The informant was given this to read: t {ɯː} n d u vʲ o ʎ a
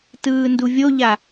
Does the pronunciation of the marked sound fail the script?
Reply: no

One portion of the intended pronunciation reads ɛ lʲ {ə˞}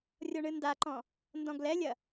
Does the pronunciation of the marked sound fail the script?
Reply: yes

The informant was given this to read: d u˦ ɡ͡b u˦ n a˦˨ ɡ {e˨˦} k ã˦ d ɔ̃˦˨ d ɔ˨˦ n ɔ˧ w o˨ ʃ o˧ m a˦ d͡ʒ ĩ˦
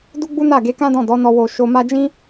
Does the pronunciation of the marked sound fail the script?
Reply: no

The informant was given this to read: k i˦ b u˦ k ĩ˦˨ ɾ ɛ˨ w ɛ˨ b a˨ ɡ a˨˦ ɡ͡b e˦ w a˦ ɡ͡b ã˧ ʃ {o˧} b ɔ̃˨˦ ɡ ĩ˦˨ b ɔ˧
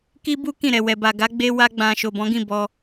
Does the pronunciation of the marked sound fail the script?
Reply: yes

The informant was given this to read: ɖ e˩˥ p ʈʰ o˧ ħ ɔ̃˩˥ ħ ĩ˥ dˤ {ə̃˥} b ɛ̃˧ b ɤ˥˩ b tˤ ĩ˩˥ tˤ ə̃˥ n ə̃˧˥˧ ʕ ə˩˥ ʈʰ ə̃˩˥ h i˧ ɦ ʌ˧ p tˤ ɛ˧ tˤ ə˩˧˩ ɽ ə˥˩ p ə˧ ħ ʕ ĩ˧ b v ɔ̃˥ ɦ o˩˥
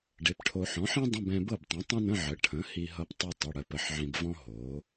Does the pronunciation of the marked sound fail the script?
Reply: yes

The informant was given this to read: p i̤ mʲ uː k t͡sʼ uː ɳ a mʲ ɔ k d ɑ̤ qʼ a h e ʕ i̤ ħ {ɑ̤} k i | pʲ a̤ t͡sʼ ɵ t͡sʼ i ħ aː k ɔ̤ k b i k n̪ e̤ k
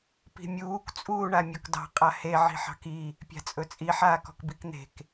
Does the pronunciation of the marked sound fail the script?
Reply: no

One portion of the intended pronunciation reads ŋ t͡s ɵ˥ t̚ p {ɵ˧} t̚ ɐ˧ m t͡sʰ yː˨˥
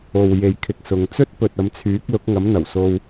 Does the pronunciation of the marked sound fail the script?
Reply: yes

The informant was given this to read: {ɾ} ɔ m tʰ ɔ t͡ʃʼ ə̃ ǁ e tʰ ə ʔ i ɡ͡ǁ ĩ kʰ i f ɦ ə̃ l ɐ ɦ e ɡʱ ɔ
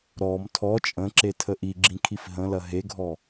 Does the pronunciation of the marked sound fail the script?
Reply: no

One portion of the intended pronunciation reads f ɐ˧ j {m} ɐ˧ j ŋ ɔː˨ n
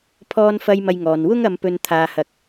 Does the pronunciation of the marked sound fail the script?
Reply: no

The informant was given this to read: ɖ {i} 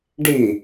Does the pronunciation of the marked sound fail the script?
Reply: no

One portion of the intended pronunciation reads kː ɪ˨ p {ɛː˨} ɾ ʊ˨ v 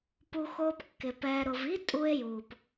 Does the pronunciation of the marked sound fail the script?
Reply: no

